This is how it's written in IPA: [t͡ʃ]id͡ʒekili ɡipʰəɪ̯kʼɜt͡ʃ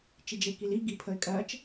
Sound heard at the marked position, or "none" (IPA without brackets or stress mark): t͡ʃ